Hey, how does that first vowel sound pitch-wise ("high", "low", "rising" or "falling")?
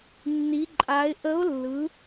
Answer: rising